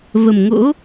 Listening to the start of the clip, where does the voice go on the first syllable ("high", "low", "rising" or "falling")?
low